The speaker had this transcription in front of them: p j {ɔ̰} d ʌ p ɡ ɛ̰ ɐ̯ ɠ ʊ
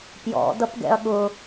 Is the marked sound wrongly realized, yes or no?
no